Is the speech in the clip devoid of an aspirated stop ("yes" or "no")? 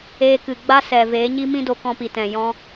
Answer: yes